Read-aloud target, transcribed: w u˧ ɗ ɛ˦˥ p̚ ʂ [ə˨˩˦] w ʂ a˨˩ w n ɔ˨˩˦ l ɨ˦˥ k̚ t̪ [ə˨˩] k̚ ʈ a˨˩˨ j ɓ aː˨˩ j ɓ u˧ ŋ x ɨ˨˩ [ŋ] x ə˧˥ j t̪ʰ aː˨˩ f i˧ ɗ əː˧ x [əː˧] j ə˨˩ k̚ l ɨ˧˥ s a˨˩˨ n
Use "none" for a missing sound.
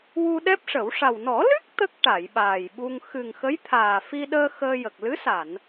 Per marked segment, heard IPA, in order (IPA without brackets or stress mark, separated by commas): ə˨˩˦, ə˦˥, ŋ, əː˧